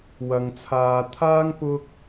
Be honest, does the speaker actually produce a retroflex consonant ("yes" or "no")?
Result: no